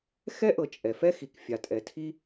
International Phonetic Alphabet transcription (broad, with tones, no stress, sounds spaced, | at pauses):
x ɛ˥ ʔ ɤ˩ t͡ʃʼ ɛ˩ f ɛ˥ x i˩ k fʲ a˩ tʼ ɛ˩ tʰ i˥